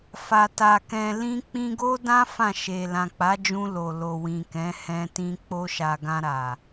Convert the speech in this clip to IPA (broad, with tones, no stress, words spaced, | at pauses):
fa˨ ta˨ kɛ̃˨lĩ˧ k͡pĩ˧ɡo˦dã˦ fã˦˨ʃe˨ lã˨k͡pa˨˦d͡ʒũ˧ lo˨lo˨wĩ˨ kɛ̃˨˦hɛ̃˧ tĩ˧k͡po˧ʃa˨ ɡã˧ɾa˨